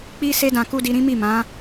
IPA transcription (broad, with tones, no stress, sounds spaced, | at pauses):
k͡p i˦ s e˦ d ã˧ k u˦ d i˧ ɾ ĩ˦ m i˦˨ m ã˨˦